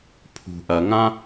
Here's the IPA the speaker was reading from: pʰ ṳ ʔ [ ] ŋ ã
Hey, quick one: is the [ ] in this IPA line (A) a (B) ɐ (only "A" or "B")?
B